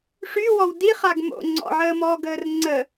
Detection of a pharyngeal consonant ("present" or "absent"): present